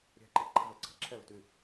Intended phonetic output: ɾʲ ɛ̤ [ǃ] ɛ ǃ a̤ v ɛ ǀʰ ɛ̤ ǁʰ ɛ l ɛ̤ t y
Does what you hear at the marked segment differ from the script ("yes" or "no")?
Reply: no